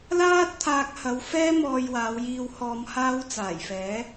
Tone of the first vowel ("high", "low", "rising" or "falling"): high